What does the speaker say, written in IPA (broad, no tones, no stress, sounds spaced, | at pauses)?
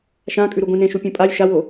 ʃ ã kʼ ʉ ɾ u ɡʷ ĩ n ẽ ʃ u pʲ õ pʼ a lʲ ʃ a w o